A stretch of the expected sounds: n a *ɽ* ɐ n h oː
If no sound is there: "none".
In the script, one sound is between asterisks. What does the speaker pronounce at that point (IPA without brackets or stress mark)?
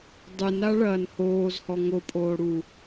ɭ